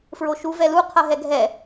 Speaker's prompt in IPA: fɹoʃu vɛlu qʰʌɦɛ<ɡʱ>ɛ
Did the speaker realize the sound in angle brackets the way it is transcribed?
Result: yes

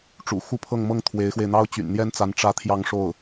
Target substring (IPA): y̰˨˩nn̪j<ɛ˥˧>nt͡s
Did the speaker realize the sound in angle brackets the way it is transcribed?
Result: no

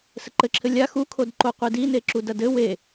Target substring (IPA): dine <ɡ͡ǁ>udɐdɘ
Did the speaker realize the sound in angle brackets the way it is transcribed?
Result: no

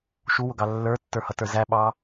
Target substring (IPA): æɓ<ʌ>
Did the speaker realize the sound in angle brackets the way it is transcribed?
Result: no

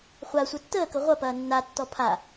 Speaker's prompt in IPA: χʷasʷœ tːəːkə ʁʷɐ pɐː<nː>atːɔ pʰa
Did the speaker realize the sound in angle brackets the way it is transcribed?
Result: yes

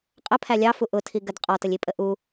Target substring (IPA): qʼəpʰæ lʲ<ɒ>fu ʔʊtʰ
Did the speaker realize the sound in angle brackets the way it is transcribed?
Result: no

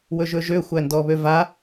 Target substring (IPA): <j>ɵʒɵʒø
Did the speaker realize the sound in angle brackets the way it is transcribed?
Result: no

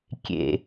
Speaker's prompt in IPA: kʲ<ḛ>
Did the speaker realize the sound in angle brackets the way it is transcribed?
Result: yes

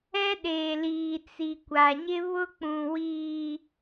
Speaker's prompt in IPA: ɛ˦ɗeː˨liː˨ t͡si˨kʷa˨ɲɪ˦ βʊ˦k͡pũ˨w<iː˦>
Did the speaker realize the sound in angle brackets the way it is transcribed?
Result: no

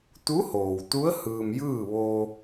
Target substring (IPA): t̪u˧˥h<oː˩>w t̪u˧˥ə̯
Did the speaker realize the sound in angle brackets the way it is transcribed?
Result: yes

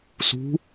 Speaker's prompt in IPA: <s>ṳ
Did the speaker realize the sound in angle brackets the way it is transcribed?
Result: yes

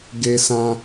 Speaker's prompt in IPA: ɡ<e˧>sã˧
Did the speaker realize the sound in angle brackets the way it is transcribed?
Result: yes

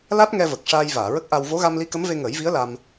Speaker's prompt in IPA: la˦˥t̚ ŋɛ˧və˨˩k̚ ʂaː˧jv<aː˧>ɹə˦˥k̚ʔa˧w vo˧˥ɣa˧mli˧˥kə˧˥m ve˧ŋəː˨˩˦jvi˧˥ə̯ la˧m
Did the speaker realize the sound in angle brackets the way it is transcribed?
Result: no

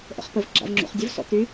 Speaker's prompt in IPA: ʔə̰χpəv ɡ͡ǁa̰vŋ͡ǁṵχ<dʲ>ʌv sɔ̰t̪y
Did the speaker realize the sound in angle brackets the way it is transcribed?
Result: yes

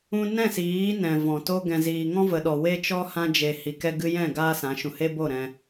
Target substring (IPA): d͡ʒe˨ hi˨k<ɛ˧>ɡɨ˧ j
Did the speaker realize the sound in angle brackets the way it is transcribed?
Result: yes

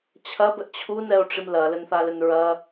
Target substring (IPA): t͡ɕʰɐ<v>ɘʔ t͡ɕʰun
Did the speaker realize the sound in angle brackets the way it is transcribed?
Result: no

